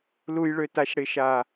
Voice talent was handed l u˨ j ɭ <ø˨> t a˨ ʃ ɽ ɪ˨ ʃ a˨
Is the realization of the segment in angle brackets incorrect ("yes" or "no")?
no